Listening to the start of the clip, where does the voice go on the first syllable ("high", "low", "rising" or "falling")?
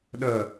low